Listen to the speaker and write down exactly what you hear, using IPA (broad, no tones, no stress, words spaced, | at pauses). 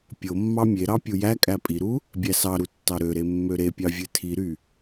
pʲomːɑ mʲeɾɑ pʲujækʼæ pʼiɾu | bʲæsɑɾu tːɑɾøɾe mːøɾepʲɑ vʲɯtʰiɾy